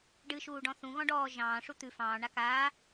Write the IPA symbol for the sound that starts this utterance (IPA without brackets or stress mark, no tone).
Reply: ɖ